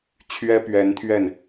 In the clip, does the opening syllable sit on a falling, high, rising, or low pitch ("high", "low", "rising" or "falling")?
high